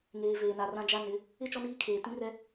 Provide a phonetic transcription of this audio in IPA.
ŋ eː˨ v eː˨ n a˨ r ã˦ d͡ʒ a˦ n ɪ˨˦ | ɪ˦ t͡ʃ ɔ˦ n iː˦ kʰ eː˨ t ĩ˦ r ɛ˦

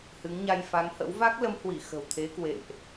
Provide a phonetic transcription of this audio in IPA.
h ɨ˨˦ ŋ ɲ a˧ j f a˨˦ ŋ h ə̰˧˥ w v a˦˥ k̚ l ə˨˦ m h w i˧˩ x ə̤˨˩ w t̪ʰ e˨˦ k w ḛ˧˨ m ʔ

